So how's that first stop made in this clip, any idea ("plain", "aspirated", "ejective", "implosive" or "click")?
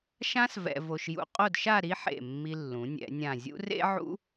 ejective